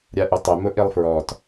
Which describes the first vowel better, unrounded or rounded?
unrounded